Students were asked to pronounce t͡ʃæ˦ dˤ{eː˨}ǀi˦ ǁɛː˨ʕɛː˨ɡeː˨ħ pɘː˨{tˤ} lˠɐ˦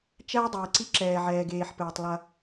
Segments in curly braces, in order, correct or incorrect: incorrect, correct

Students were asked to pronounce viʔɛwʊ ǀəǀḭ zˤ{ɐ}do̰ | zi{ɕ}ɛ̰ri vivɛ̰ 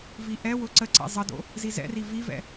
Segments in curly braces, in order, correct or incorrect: incorrect, incorrect

